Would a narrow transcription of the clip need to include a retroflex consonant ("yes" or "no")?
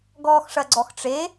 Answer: yes